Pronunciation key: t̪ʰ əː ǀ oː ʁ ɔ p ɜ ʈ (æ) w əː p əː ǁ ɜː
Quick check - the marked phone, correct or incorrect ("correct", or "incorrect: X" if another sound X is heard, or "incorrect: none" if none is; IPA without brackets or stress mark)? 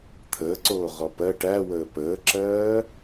correct